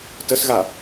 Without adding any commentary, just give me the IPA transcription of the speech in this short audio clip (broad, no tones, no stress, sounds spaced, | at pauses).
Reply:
t ə s ɣ a